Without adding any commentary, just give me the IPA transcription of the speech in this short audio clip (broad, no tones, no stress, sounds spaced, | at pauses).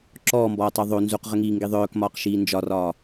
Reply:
ǁ ɔː m b ɔː tˤ ə˞ ðˤ o n z u q ʁ ə ŋ iː ŋ ɡ i ðˤ œː k m ɒː q ʃ iː n d͡ʒ ɒ r ɒː